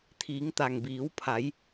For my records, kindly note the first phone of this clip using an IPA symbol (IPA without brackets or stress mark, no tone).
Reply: t̪ʰ